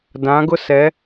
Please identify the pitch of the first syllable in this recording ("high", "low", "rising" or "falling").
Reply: rising